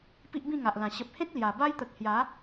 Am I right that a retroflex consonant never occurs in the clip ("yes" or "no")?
yes